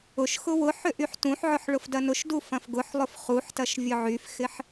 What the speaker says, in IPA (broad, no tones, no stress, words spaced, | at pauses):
ʊʃ xʊwʊħʏ ʔyħtũħʕʊħ ɭʊfdɐnʊʃdu fɐ̃fɡʊħlˠʊf χuħtɐʃ vʲʊʕyfxɪħ